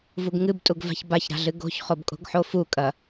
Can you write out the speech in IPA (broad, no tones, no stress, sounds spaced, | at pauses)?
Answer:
v u ɡ ŋ ɨ b tʼ u ɡ v a̤ ç b a ç ɾ a̤ ɮ ɨ ɡ o̤ ç χ o b kʼ o̤ ɡ ħ o f u kʼ ɐ